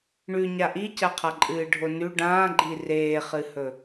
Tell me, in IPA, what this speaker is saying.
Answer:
ɳʉ ɲaʔicaqʰa ǃʼɨːɖʱonʉ ɖãːɡ͡ǃi reːχɨhɵ

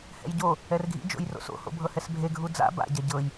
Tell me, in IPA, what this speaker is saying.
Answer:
hɛ̰jɟo | ɛrɡʱḭ d͡ʒo̰jro̰so̰ ho̰bʱɤhɛsbʱe ɡʱud͡za̰ ba̰ ɟaɟɤj

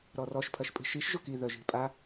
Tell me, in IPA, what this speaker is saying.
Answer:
ɾɔrɔʃ pʰɐʃpʼi̤ʃiʃ ʒʊki ðœʒi̤pʼa

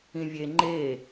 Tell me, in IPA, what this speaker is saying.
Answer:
ĩvʲe ŋ͡ǃe

